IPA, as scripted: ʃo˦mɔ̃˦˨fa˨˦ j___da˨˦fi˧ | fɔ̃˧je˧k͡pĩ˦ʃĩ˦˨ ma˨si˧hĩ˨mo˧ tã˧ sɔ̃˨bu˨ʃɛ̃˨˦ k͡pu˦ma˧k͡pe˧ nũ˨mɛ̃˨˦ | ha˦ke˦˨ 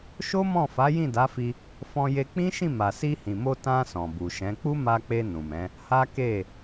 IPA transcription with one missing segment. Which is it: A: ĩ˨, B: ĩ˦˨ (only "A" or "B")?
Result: B